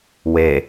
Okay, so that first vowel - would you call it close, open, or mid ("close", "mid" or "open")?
mid